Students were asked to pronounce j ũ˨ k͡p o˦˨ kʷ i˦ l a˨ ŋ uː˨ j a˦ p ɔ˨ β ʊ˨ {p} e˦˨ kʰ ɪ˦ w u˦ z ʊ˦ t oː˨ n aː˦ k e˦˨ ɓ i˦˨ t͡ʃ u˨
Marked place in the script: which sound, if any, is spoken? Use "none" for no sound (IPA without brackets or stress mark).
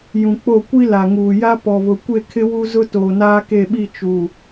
kʷ